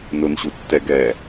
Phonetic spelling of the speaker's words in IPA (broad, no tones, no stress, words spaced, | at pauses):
nʊnɕu tːɛɡɛː